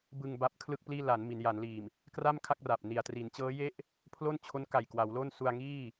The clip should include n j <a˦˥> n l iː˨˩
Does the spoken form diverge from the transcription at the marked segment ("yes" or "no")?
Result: yes